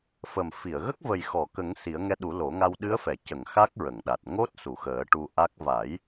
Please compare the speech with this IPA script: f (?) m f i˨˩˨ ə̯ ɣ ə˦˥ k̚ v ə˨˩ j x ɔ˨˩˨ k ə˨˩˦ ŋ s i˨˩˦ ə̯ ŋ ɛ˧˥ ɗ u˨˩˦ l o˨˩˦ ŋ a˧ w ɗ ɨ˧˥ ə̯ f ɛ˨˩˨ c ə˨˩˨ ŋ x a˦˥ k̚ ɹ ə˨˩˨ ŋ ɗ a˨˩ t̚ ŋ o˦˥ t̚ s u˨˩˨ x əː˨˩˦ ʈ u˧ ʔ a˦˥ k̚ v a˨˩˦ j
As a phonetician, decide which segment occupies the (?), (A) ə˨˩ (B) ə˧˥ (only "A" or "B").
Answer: A